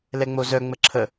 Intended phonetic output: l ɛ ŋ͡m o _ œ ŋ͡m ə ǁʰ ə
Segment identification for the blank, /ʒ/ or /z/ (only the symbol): z